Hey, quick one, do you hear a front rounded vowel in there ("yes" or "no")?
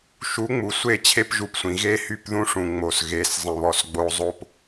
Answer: yes